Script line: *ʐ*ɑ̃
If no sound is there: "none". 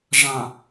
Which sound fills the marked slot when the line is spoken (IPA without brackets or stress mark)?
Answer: ʐ